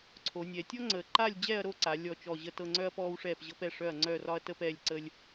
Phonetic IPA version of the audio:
ǀʰ o˩˧ nʲ ɛ˩˧ tʲ ɔ˦ ŋ͡ǀ əː˩˧ ǃ aː˦˨ lʲ d͡ʑ ɛː˦˨ ɐ̯ ɾ o˦˨ ǀ a˩˧ lʲ ɔ˦˨ t͡ʃ ɔ˦˨ ʑ ə˦˨ t ɤ˦˨ ŋ͡ǀ œ˦ ɐ̯ p ɔː˦ w ʂ ɛː˦˨ p ʑ ɤ˦ p ɛ˦˨ ʂ œ˦˨ ɐ̯ ŋ͡ǀ œ˦˨ r ɒ˦ ɐ̯ t əː˦ p ɛː˦˨ lʲ ǀ ə˦ lʲ

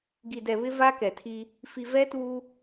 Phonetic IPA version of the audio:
ɡ i˨ d ɛ˨ β ɪ˦ v a˦ k ɛ˨ tʰ i˦ | f i˨ v ɛ˦ t uː˦

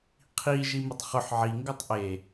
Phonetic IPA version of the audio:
qʰ i ʒ i m ʊ tˤ χ ʊ ħ ʕ i ŋ ɡ o tˤ ʔ e

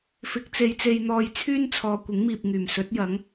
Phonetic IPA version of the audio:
f ɪ˨˥ k̚ t͡s e˨˧ j t͡s e˧ j n̪ ɔː˧ j t͡sʰ yː˥ n t͡sʰ ɔː˨ kʷ ɪ˨˥ ŋ m iː˨ p̚ ŋ yː˨˩ m s ɵ˨˥ t̚ j ɐ˨˥ ŋ

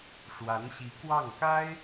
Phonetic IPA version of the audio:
ʂ w a˧˥ n ɕ i˧˥ k w ɑ˥˩ ŋ k a˥ ɪ̯

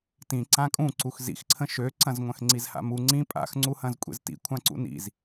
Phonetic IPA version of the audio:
t ĩ ǀ ã kʼ ũ ǀ u x z ḭ x ǀʰ ə̃ ʃ ø ǀ ɐ̃ z ŋʷ ɐ̃ x ŋ͡ǀ i z h a̰ m u ŋ͡ǀ ĩ pʼ a̰ x ŋ͡ǀ u h ɐ̃ z kʷʼ ḛ z t ḭ kʷʰ ã ǀ ṵ n ḭ z

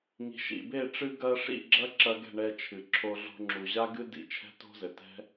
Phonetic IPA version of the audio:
ŋ i̤˨ ʃ ḭ˨ b e˦˨ ʈ͡ʂ ɨ˧ ɡ ɐ˧ ʂ ḭ˦˨ ɡ͡ǁ ɐ˦ ǁ ɐ˧ ɡ ɛ̤˦˨ ɳ ɛ˧ t͡ʃʰ ɨ˨ ǁʰ o˧ ɮ o̤˧ ŋ͡ǁ u˨ ʑ a˦ ɡ ɨ˦ d ḭ˧ t͡ʃʰ ɛ̤˦ t o̤˦ z ɘ˨ t ɛ̤˦

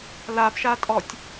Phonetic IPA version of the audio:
l a p ʃ a tʼ ɔ tʲ

